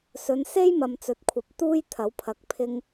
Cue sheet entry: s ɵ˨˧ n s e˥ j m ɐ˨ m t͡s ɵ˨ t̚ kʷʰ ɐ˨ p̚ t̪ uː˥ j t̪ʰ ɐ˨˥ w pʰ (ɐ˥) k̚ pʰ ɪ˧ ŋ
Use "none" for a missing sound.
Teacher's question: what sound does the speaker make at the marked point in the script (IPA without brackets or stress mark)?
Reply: ɐ˨˥